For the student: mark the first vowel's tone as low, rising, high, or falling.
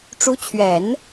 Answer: rising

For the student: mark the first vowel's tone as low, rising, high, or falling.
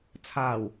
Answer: low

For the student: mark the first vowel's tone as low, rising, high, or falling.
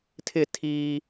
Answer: falling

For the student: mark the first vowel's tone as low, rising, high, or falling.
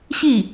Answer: falling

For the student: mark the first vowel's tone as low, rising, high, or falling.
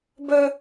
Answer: high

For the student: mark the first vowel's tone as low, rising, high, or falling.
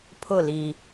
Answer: falling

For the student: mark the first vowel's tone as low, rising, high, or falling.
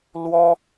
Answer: high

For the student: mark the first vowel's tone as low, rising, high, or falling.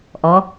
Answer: rising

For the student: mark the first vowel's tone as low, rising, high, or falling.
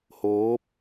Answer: rising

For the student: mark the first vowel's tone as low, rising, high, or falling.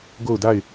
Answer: falling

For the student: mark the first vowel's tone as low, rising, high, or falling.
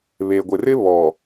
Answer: low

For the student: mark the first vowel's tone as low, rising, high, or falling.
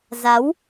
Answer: rising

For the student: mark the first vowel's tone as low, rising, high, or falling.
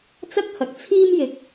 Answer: high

